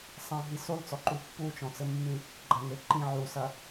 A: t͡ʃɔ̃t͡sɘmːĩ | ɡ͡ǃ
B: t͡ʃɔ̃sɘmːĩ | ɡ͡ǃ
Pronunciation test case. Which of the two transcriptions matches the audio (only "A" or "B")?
A